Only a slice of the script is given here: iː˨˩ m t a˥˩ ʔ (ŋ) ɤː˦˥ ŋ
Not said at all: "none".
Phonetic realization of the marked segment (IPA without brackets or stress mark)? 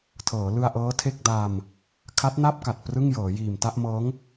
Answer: m